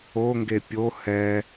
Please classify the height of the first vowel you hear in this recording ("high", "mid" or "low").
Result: mid